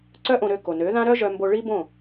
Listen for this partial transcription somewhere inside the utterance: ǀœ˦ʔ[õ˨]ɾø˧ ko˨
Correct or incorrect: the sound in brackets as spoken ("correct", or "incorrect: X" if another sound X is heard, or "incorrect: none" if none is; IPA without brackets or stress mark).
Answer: incorrect: õ˧